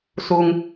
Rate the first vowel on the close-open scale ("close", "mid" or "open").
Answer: close